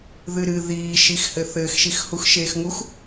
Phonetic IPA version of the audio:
ðɨɾɨ ðiːʃixhɘ θɘːxʃixhux ʃeːxŋux

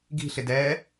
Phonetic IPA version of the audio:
ɡi̤ɬɪ dɛ

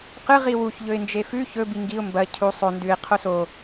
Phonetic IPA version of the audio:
qɨ ʁiwuç ʎɵɪ̯nd͡ʒefʉ çɵ biŋɡiʊ̯ mbɐ cʰu sˤo ndʉɪ̯ qʰoso

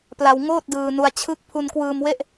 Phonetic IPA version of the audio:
pla˧wŋoː˥˩t̚dɯː˧nu˧a̯ t͡ɕʰɯ˦˥k̚ pʰu˧nkwɯː˧mwe˥˩ʔ

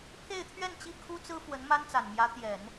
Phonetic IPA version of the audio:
pʰe˥˧ɪ̯t̪ʰɥɛ˥˩nt͡ɕi˥ kʰu˥t͡sɹ̩˥ fwə˧˥nma˥nt͡sa˨˩nmjä˧˥ t̪jɛ˨˩˦n

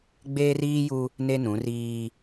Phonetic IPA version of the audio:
ɡ͡beː˦riː˦ju˦ | ne˦nũ˨˦riː˦

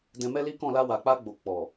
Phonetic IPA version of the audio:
dɛ̃˧ mɛ˦li˦kɔ̃˦˨ la˧wa˨k͡pa˧ɡ͡bo˨ k͡pɔ˨

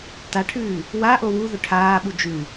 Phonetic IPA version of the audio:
taʈʰʉː | waʔo wu ðɵʈʰaːɓu d͡ʒʉ

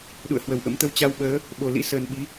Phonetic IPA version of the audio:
ɗṵ˧˨ə̯hwə˨˩wʔə̰˧˥m t̪ə˨˦wt͡ɕa˧wɓəː˨˦ | ɓo˨˩lḭ˧˥ səː˨˩nɓi˨˦

